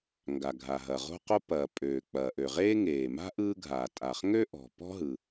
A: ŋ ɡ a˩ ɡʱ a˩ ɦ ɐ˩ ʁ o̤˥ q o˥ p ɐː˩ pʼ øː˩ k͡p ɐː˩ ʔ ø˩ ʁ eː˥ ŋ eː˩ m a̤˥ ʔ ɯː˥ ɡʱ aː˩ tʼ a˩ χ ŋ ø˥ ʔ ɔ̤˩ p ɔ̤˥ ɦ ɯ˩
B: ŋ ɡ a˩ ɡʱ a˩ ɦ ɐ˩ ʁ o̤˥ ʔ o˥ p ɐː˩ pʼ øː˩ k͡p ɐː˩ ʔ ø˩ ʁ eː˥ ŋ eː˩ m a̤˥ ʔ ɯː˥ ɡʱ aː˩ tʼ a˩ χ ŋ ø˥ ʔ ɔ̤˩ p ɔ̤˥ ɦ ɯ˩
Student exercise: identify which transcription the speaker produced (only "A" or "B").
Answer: A